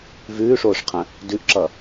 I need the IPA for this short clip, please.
v ʉː ʂ oː ʂ qʰ ə̃ | d ʉ ʔ ǁ ʌ

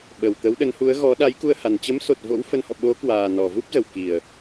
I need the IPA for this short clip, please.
ɓ ə˨˩ w t̪ ə˨˦ w ɗ ə˨˦ n h u˨˦ ə̯ ɣ ɔ˨˦ ɗ a˨˦ j k u˧ ə̯ h a˨˩ n t͡ɕ ə˨˦ m s o˨˩ t̚ v o̰˧˥ w f ə˨˦ n h ɔ̰˧˨ ɓ o˨˦ k w aː˨˩ n ɔ˨˩ v u˦˥ p̚ z ə˨˩ w k i˨˩ ə̯

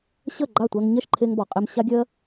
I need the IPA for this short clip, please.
ɕ ə˦˨ ɡ͡ǃ a˦˨ tʷ ɜ˧ ŋ ɲ ɛ˦˨ ʃ ǃʰ e˧ ŋ b ɔ˨ qʼ e˧ m ɕ a˦ ɡʲ ɜ˦

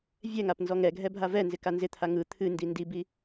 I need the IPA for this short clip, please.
vʲ ɛ ŋ a p n z ɔ ŋ ɛ ɡʱ ɛ bʱ a v ɛ n z ɪ k a n z ɪ t̪ʰ a ŋ ɯ t̪ʰ ɨ n d i n d i b i

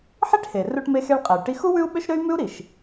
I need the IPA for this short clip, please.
ħ i˥ ʈ h e˩ r u˧ ʈ m e˧ x e˧ ɭ qʼ ɛ˩ y̯ ʈ i˧ x u˥ w ʉ˥ u̯ ɓ ø˥ ʃ ɾ ø˥ y̯ m ʉ˥ u̯ ɾ i˩ ʃ

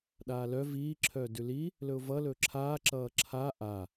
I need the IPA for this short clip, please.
ɗ aː l œ v iː ǁʰ œː d ʉ l i | l ɵ ʊ̯ v ʌ l ɵː ǁʰ aː ǁ ʌː ǁʰ aː ʔ a

